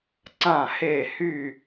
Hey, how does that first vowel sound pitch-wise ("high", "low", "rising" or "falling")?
falling